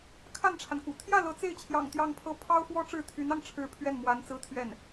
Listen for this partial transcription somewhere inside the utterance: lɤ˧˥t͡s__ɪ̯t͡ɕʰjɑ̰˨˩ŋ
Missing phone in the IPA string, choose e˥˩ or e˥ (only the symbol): e˥˩